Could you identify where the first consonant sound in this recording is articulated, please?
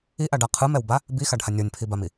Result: glottal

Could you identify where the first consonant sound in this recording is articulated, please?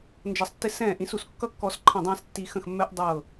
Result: alveolar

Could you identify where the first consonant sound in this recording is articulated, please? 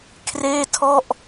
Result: velar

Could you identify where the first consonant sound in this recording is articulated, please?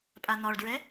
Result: labial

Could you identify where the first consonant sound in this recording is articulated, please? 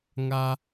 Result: velar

